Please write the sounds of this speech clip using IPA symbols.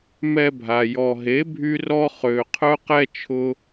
m ɛ˧ bʱ a˨ j ɔ˨ ɦ e˨˦ bʱ y˧ r ɔ˧ χ ø˨ qʰ œ˧ q ɛ˧ t͡ʃʰ ʊ˧

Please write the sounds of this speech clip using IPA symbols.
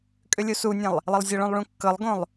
kʼ ʏ lʲ u s u nʲ ɛ̃ lˠ | lˠ ɘ lˠ zʲ ɤ ɭ õ lˠ ɭ ũ kː ɤ lˠ ɡ õ lˠ

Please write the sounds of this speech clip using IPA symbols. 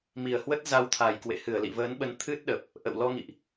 m i˨˩ ə̯ h w ə˦˥ t̚ z a˧ w t̪ʰ a˨˩ j k w ḛ˧˨ h ɨ˧˩ ə̯ l ḭ˧˨ v əː˨˦ n ɓ ə˨˦ n t̪ʰ ɨ˦˥ t̚ ɗ ə˨˩ p̚ | ʔ ə̰˧˨ w l ɔ˧ ŋ ḭ˧˨ ʔ

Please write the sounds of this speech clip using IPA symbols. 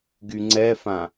ɡ y ŋ͡ǀ ɛ f ã

